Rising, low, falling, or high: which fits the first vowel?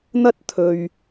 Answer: high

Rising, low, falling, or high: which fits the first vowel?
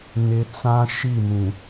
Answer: low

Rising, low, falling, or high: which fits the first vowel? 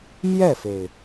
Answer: falling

